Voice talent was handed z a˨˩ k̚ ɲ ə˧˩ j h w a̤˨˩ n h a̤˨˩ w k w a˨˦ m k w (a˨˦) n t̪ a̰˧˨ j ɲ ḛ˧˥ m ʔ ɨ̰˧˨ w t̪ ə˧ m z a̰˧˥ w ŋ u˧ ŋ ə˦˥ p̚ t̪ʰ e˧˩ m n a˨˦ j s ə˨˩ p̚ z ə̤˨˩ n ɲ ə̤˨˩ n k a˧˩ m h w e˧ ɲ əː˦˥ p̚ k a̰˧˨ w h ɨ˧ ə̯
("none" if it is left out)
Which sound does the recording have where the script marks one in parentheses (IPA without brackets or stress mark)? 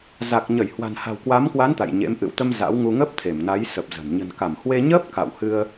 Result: a˨˦